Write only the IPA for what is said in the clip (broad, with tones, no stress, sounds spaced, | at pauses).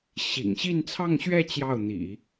ɕ ḭ˨˩ ŋ ɕ i˥˧ n t͡sʰ ɑ˥˧ ŋ ɕ ɥ ɛ˥˧ t͡ɕ j ɑ˥˩ ʊ̯ n̪ ḭ˨˩˦